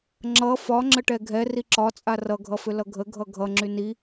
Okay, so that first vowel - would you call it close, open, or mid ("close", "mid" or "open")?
mid